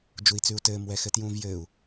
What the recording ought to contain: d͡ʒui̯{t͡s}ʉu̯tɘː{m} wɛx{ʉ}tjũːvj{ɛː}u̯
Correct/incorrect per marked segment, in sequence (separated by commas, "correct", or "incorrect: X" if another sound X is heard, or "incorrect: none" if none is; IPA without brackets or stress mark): correct, correct, incorrect: ɘ, incorrect: ɘː